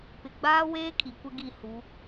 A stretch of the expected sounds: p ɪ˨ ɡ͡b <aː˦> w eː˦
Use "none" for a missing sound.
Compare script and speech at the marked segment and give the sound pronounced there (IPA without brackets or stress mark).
aː˦